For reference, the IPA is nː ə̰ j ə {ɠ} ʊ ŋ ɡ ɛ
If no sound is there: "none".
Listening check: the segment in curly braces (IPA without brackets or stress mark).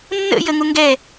ŋ